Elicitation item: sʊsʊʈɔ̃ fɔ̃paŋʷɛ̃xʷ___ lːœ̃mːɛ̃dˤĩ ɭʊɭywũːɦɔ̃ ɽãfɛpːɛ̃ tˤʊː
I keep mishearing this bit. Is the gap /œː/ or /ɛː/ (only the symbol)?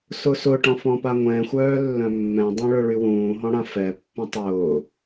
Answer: œː